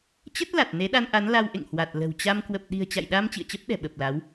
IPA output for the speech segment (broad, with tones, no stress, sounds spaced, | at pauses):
t͡ɕ ə˦˥ t̚ l a˨˩ t̚ n e˨˦ ɗ a˧ n ʔ a˨˦ n l a˧ w ʔ ḛ˧˨ ŋ h w a˨˩ t̚ l ə̤˨˩ w t͡ɕ a˧ m k w ə˨˩ p̚ ɗ i̤˨˩ ə̯ t͡ɕ a̰˧˨ j ɗ a˧ m t͡ɕ ḭ˧˨ ə̯ t͡ɕ ə˦˥ p̚ ɗ ɛ̤˨˩ ɓ ə˨˩ p̚ l a˨˦ w